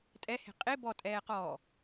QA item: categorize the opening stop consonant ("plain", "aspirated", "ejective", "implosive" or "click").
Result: ejective